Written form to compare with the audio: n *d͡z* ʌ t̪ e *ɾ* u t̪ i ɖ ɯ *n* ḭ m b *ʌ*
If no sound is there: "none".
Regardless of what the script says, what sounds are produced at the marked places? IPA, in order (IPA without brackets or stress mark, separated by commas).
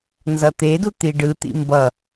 z, d, t̪, ʌ